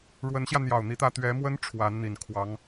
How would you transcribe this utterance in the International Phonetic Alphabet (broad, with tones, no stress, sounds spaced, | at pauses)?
ɻ w ə˧˥ n ɕ j ä˧ n̪ j ɑ˨˩ ʊ̯ n̪ i˥ t̪ ä˥ t̪ ɥ ɛ˧˥ m w ə˥ n ʈ͡ʂʰ w a˧˥ n n̪ i˨˩ n kʰ w ɑ˧˥ ŋ